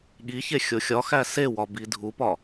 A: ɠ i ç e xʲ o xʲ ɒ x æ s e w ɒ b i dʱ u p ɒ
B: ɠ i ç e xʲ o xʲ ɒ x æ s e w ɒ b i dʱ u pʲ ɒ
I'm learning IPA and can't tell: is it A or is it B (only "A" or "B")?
A